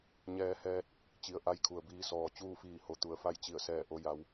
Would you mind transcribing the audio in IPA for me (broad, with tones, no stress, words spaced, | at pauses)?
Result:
ɲɛː˧hɛː˧t̚ | t͡ɕi˩ə̯ ʔa˧˥jkʰu˩ə̯biː˧sɔː˩ t͡ɕuː˥˨fiː˧˩ho˩ t̪u˩˧ə̯fa˥˨jt͡ɕi˧˩ə̯sɛː˧˩ ʔo˩˧ja˩˧w